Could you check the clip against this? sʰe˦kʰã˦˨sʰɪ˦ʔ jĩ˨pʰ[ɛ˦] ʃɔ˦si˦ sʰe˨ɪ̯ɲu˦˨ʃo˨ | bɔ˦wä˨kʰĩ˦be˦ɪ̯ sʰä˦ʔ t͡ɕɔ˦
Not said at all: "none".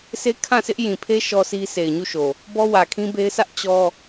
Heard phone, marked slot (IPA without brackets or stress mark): e˦